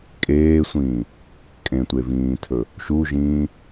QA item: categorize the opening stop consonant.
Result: ejective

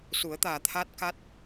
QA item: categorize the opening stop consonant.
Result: plain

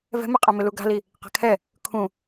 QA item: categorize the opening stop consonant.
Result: ejective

